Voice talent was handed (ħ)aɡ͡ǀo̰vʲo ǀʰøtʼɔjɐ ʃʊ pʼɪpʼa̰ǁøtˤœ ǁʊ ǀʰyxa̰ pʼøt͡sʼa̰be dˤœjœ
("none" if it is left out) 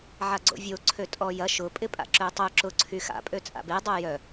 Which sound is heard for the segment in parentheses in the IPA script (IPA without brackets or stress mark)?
ʕ